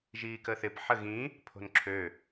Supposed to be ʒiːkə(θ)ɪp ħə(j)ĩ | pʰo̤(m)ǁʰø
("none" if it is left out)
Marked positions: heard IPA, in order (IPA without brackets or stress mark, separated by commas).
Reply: θ, ɣ, n